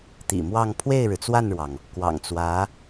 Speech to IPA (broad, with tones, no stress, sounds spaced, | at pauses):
t̪ ḭ˨˩ m w ɑ˥˧ ŋ pʰ w e˥˩ ɪ̯ ɻ ɻ̩˩ t͡s w a˥˩ n ɻ w ɑ˩ ŋ | k w ɑ̰˨˩ ŋ t͡s w ä˧˥